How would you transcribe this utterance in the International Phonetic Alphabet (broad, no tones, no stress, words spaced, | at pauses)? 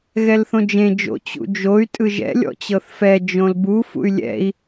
ɣɛlθõd͡ʒẽ d͡ʒo̰ t͡ɕṵd͡ʒoy̯ tʼɯʒɛ̰ lʲɔ̰t͡ɕɤθfɛ d͡ʒõlbu fṵy̯lʲɛ̰i̯